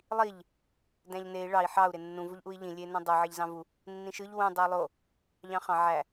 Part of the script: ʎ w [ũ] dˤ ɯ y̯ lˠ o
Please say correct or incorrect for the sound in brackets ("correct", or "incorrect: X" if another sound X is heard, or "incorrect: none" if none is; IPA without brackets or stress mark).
correct